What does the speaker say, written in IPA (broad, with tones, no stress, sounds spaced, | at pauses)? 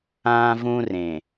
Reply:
ãː˦ v ũ˦ r ẽ˨